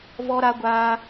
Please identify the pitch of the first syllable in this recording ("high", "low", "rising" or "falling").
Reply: high